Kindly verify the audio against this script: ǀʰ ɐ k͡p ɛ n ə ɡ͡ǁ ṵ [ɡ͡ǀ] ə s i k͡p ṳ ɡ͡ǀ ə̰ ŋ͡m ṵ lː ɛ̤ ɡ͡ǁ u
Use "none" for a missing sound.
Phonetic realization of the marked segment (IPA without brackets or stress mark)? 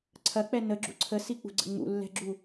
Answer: ǀʰ